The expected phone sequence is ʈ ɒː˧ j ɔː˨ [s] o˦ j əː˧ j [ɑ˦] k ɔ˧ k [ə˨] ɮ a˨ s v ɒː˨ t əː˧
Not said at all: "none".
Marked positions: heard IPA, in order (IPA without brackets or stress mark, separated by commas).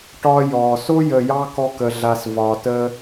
s, ɑ˦, ə˨